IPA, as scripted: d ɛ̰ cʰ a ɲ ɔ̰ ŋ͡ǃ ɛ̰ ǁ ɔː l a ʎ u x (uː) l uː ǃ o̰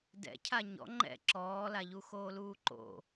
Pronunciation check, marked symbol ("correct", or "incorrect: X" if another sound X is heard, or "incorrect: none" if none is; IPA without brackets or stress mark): incorrect: oː